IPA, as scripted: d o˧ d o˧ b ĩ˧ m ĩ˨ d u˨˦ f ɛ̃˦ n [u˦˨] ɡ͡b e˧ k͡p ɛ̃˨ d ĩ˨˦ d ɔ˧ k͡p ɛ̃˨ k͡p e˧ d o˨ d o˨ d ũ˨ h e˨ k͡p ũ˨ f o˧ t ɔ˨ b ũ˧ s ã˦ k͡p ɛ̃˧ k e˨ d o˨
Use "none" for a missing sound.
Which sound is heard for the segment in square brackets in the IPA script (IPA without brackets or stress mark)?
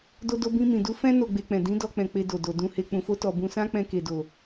o˦˨